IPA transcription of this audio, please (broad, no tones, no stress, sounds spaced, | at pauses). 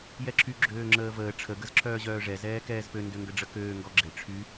j ɛ ǁʰ y ɡ͡ǁ øː ŋ͡ǁ əː v əː ʈ͡ʂʰ ə ɡ ə z ǁʰ œː ʑ œː ʐ ɛ z ɛː k ɛː z p ø n d ø ŋ ɡ ə ɖ͡ʐ ə k øː ŋ ɡ ɔ ɡ͡ǁ e ʈ͡ʂʰ y